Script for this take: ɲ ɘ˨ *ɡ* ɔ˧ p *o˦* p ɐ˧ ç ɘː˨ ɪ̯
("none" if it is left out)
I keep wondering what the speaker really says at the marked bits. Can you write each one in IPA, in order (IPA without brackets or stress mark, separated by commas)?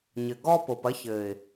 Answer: ɡ, o˨